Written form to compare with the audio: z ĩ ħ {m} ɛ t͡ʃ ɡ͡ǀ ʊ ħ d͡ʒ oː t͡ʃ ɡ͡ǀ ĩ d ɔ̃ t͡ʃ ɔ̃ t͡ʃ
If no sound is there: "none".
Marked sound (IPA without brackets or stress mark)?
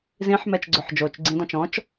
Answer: m